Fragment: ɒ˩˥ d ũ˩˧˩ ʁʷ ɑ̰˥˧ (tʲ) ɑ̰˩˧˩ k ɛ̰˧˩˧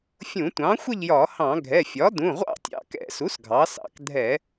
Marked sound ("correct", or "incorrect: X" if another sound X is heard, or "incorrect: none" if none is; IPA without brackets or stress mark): correct